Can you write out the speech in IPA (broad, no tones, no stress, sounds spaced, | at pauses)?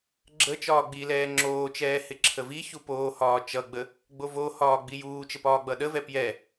ɡ͡ǁ ə t͡ʃ ɒː ɡ͡b i l ɛː ŋ͡ǁ oː t͡ʃ ɛː h ɪ ǁʰ ə v i ç u p oː h ɒː t͡ʃ ʌ ɡ͡b ə | ɡ͡b o v o h ɒː ɡ͡b i j uː t͡ʃ ə p ɒː ɡ͡b ʌ ɗ ə v ɛ p j ɛ